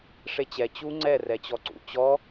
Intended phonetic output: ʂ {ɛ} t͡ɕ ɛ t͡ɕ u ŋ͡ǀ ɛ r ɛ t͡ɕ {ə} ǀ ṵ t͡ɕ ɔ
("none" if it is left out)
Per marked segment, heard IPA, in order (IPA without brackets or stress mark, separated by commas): e, ɔ